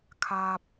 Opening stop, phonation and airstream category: aspirated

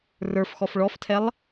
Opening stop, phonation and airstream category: aspirated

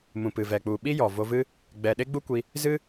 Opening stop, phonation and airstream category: plain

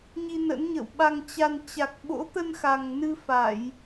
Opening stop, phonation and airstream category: implosive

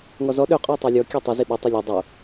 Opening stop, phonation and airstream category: implosive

